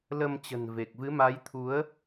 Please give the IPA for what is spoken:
lə˧mt͡ɕə̤˨˩nve˨˩k̚ vɨ˨˦ma˨˦jt̪ʰu˨˦ə̯

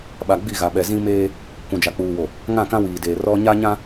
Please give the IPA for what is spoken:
ɓa˨ɡ͡bi˦˨ɣa˨ɓɛ˨ zĩ˦meː˦ | kʷũ˨d͡ʒa˨k͡puː˨wo˨ | ŋã˦˨kã˦wiː˨deː˨ rɔ˦ ɲa˦ɲã˦

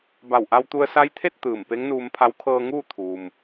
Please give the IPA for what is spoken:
ba˧˩wʔa˧wt̪u˧ə̯ sa˧˥jt̪ʰe˥˨t̚ t̪ɯː˧˩m pe˧˥ŋnuː˧mpʰa˧˥w kʰɤː˧ŋuː˥˨ t̪ʰuː˩m

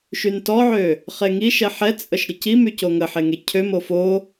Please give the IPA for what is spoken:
ʃyntɔʕø | χeŋiʃɛ ħɛt͡sʼəʃ ɾʲəcimy coŋəħe ŋecʰømo fo

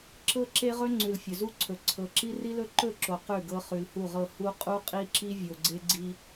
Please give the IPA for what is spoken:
ǁɤ˦ǁe˦ʁɵ˦ ŋ͡ǀʉ˨lfʲɵ˨zu˦ǀʰɵ˨ ǀʰɤ˨ǁi˦ ri˦lɵ˦ǃɵ˦˨ǁo˨ qʉ˦˨ɡɤ˦ χʉ˨lhu˦˨ʁɤ˦˨ hu˦ qʼu˦qʼi˦ǁi˦ vʲo˨ɡ͡ǀe˦ɡ͡ǀi˦

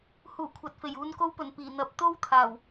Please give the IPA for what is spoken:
huː˨˩ kʷʰɐ˨t̚fe˨˩j uː˨nko˧wpɵ˨˩n piː˨˩ n̪ɐ˨p̚t̪o˥w t̪ʰaː˨˩w

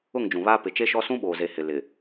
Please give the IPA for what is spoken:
ʊ˦˨ŋd͡ʒũ˨βaː˦ pɪ˨t͡ʃe˦ʃɔ˦ sũ˦ɓoː˨ze˨ hɪ˨ lɪ˨

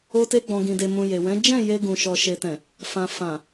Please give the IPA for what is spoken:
o˧te˧ ɡ͡bɔ̃˨ ɡĩ˨de˨mũ˨ je˨wɛ̃˨˦ d͡ʒɛ̃˦˨ je˧ɡũ˨ ʃɔ˨ʃe˨tɛ̃˨ | fã˨fã˨

